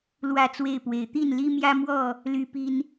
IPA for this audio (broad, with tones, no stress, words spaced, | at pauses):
lwä˥˨t͡swe˥˨ɪ̯pwe˨˦ɪ̯ t̪i˥˨nli˦mjä˦mwɔ˥˨ | ly˦pi˦n